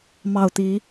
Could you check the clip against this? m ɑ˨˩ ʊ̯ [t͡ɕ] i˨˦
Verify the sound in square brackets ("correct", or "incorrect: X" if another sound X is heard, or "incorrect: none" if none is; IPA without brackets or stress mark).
incorrect: t̪